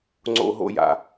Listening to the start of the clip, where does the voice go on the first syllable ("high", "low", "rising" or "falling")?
high